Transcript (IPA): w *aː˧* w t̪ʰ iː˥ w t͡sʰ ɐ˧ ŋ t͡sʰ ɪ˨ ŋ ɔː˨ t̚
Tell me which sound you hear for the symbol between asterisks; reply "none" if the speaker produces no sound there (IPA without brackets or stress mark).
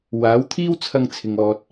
aː˨˥